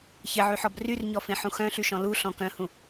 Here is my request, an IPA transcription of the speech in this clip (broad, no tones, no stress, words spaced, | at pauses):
çɪʕyħɔb ryrɲɔfẽħũ xœ̃ɬyʃɔ̃ luɬɔ̃ kœ̃hũ